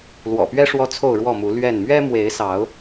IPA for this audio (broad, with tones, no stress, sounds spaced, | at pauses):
l w ɔ̰˨˩ p ɥ ɛ˦ ʂ w ɔ˦ t͡sʰ o˥˨ ʊ̯ ɻ w ɔ˥˨ m u˨˦ l ɥ ɛ˥˨ n m ɥ ɛ˦ m w e˨˦ ɪ̯ s ɑ˨˦ ʊ̯